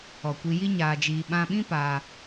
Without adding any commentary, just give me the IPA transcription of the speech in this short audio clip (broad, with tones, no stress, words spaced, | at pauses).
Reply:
ɔ˨kʷi˧ ji˦ɲaː˧d͡ʒiː˧ ɓã˧ɓĩ˦ paː˦